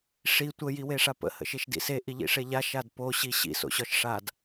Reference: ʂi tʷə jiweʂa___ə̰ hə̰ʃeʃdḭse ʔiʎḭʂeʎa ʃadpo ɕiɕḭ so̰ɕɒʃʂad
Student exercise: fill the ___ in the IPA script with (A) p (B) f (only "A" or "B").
A